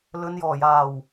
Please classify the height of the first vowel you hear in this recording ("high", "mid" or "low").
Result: mid